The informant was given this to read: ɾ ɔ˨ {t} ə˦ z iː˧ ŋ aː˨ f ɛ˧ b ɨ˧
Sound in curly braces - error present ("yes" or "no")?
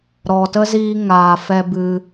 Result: no